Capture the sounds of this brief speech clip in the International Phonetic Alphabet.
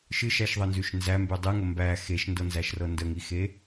ʃ ɨ ʃ æ ʃ ðˤ ɤ n z ʉ ʃ n z æ m b ʉ dˤ ɨ ŋ ə m b æ x e ʃ n d ɤ n z æ ʃ r ɤ n d ə ŋ i x e

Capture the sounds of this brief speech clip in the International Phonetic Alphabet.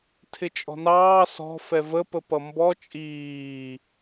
tʰ ɪ t͡ʃʼ ɔ̤ n ɑː s ɔ̤ f ɛ v ə p ə p ʌ m b ɔ t͡ʃʼ iː

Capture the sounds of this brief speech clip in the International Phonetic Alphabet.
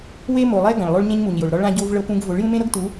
w e˦ m o˨ lˠ ɛ˦ ɡ ã˨ ɭ lˠ o˦ ɭ ɲ ẽ˦ ɲ m u˨ ɲ j o˨ ɭ ɾ ɔ˦ ɭ ã˦ ɟ o˦ v ɭ ɤ˦ p ũ˦ ɡ v o˨˦ ɭ j ũ˦ m ẽ˦ ɾ ɤ˦ ɡ t u˨˦

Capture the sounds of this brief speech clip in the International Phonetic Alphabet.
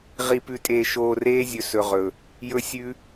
ʁ i˧ p ʉ˧ tʼ eː˧ ʃ oː˧ r eː˦ zʲ ɵ˧ s ɵ˨ ʁ ɵ˨ | j ɵ˦ sʲ ʉ˦

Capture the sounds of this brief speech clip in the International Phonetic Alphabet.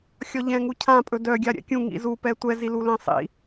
xʲ ɔ ʎ ɛ̃ ŋ u cʰ ã pʼ ɵ d œ ɡʲ a ɾʲ ɛ̰ kʲ ũ ŋ ḭ z u p ɛ tʷ ɛ z i l u l ɛ̃ sˤ ḭ

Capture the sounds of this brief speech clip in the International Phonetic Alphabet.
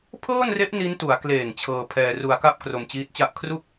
pʰ ɤː˥˩ n r e˦˥ ʔ n i˦˥ n t u˩˦ a̯ k l eː˨˩ ŋ t͡ɕʰ ɤː˧ pʰ ɛː˧ r u˧ a̯ k a˥˩ p̚ k r o˧ m t͡ɕ iː˦˥ t̚ t͡ɕ a˥˩ ʔ kʰ r u˥˩ k̚

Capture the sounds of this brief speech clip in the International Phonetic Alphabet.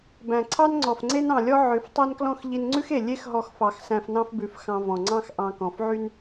b æ̃˨ ǀʰ ɑ˦ n ŋ͡ǀ ɔ˨ f ŋ͡ǀ e˦ n ɑ̃˨ lʲ ɔ˦ ʕ ø˨˦ f tˤ æ˦ n k l ɔ̃˦ x ʎ i˧ n ŋ͡ǀ ʉ˦ x e˨ lʲ e˦ x ɦ ɔ˧ x f ɑ˨ x s æ̃˧ f n ɑ̃˦ f b ʉ˨˦ f x ɑ̃˧ v ɔ̃˨ ŋ͡ǀ ɑ̃˦ x ʔ ɑ̃˧ k ɔ̃˨ f ʕ y˦ n

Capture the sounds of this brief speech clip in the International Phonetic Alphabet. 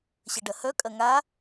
ɕ ɐ ɖ ɐ h œ kʼ ɐ ŋ a

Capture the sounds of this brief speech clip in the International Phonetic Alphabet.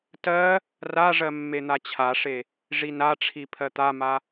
t ɜ | r a ʐ ɜ mː e n̪ a t͡ɕʰ a ʂ e | ʐ i n a ʈ͡ʂʰ i pʰ ɜ t̪ a m a

